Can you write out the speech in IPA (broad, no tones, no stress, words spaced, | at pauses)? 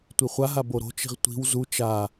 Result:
tʷiχʷaɦa boɾo̤t͡ʃi̤ʁ tʷi̤w zu t͡ʃa